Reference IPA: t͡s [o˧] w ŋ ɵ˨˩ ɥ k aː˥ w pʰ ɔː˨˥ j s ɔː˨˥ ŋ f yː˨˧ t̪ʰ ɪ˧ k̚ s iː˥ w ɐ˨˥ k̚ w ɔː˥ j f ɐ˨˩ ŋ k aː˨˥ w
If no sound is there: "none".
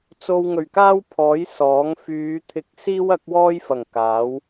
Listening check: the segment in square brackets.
o˧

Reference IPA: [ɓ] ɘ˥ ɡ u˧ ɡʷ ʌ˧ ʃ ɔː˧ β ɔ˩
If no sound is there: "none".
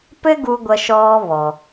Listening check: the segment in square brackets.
p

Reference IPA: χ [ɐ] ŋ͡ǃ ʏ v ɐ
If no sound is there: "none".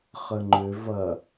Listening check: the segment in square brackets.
ə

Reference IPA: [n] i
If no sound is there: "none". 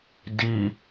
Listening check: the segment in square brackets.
d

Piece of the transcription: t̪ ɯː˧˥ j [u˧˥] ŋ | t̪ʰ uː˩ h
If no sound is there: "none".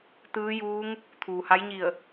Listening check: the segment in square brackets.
uː˧˥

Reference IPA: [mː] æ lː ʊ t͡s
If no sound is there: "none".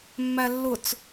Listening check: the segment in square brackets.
mː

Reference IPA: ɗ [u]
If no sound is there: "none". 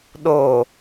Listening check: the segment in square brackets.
o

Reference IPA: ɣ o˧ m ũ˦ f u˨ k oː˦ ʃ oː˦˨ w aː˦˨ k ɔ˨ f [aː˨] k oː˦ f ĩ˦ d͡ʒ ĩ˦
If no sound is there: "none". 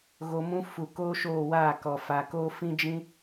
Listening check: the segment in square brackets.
a˨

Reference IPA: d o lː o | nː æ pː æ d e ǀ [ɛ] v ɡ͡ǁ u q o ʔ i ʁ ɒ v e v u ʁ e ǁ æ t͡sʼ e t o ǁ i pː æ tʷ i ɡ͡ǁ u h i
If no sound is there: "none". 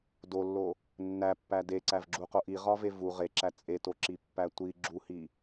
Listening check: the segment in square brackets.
æ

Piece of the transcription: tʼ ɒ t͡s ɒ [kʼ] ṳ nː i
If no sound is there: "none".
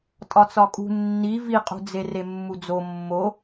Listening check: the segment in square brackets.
kʼ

